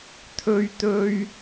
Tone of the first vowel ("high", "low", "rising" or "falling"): high